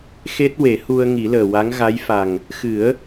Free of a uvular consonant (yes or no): yes